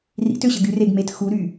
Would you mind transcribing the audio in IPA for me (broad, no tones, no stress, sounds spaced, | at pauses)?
r ḭ t ø ɕ ə ɡ y r e ɡ m e t x u ɾ y